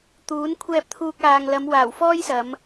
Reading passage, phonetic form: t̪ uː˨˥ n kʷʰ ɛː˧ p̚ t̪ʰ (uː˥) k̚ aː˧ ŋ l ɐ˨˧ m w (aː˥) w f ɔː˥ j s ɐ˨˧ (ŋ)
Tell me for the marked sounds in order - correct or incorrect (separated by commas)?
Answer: incorrect, incorrect, incorrect